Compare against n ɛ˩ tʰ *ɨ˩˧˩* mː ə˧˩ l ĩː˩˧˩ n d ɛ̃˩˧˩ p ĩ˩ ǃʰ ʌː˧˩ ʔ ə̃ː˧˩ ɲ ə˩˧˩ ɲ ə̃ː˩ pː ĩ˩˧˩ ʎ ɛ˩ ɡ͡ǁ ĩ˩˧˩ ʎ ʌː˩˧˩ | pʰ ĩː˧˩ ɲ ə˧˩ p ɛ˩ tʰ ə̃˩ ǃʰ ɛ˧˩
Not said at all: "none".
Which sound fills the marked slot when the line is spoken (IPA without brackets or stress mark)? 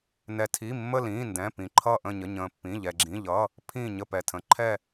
i˩˧˩